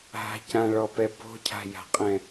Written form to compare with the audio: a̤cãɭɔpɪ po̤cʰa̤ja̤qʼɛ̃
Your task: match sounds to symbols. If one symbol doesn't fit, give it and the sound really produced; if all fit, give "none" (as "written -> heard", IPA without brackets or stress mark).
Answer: ɪ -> ɛ